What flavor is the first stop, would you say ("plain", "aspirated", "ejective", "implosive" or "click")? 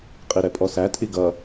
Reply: ejective